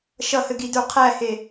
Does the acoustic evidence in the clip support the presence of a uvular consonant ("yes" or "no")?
yes